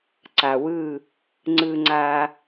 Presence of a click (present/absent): present